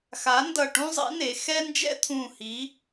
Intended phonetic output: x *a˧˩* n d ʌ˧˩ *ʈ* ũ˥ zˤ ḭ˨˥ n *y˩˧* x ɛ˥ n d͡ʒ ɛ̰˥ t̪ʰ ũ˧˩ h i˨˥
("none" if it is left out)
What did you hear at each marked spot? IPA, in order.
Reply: a˨˥, ʈ, e˩˧

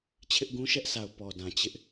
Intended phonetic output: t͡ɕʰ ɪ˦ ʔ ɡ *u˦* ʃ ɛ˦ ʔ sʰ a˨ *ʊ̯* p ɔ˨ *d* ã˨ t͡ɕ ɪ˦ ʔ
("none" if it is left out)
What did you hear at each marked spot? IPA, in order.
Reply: ũ˦, ʊ̯, d

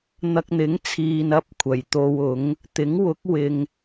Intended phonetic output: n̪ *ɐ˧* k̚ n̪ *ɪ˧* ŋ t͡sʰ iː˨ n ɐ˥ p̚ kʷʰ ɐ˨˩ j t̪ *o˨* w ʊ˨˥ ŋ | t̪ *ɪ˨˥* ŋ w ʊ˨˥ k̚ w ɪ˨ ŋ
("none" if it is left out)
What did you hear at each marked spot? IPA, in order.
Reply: ɐ˧, ɪ˨˥, o˧, ɪ˨˥

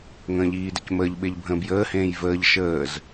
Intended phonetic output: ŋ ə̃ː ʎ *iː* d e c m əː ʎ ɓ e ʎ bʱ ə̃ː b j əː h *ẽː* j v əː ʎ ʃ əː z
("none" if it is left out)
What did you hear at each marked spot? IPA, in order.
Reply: iː, ẽː

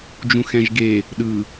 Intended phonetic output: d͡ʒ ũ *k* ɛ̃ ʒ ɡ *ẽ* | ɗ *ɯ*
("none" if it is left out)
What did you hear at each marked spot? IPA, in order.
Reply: x, e, ɯ

